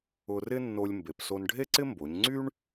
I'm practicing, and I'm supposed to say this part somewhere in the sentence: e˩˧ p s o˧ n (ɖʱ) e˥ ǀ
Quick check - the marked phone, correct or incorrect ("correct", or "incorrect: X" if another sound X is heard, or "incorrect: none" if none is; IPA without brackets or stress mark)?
correct